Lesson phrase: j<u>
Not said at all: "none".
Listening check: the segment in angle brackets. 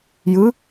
ɯ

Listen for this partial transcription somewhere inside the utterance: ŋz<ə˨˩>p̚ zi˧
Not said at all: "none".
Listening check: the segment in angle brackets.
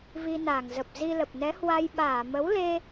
ə˨˩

